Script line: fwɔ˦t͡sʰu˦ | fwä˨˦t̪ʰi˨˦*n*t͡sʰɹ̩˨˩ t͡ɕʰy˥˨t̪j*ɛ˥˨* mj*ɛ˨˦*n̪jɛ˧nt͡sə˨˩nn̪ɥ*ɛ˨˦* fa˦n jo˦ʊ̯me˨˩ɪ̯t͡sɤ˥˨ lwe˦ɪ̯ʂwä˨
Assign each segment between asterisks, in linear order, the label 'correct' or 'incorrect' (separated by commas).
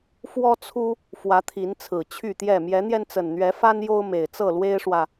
correct, correct, correct, correct